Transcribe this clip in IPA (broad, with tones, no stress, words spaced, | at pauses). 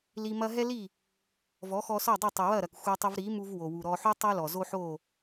li˧mɐ˥ ɦɛ˥li˥˩ | vɔ˩˥xɔ˧sɔ˥˩dˤu˥˩ tˤə˩wɐ˥˩ɾɐ˩k xʷɛ˧tˤə˧vɾi˩˥mu˧v wo˩wu˩ ɾɔ˧ ħu˥tˤɐ˥lɔ˩ zo˥ħo˥˩